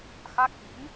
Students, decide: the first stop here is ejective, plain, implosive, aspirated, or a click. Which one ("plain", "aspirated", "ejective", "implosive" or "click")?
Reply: plain